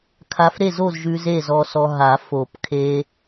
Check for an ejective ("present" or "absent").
absent